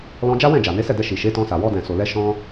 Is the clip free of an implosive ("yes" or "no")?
yes